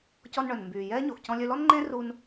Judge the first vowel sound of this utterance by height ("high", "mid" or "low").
mid